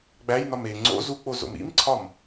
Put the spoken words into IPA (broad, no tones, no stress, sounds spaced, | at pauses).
ɡ͡b æ j n ɒ m e ŋ͡ǀ o̰ z u k͡p o z o̰ m ḭ m ǀʰ ɒ m